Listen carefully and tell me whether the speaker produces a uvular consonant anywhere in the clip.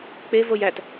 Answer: no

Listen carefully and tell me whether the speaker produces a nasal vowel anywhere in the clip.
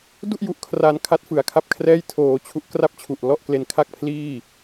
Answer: no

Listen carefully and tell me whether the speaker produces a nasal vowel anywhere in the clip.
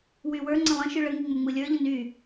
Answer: yes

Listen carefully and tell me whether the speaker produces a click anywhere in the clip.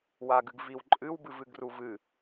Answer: yes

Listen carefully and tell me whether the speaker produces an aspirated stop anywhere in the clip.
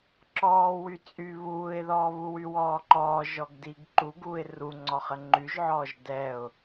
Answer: no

